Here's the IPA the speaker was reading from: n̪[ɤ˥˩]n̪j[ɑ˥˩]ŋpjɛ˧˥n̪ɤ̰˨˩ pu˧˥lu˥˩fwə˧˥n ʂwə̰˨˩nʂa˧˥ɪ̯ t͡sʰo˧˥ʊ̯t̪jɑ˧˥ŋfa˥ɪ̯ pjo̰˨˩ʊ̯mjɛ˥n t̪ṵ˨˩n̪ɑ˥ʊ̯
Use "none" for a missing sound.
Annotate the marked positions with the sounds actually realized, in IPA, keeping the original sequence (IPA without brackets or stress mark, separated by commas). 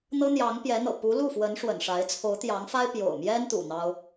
ɤ˥, ɑ˧˥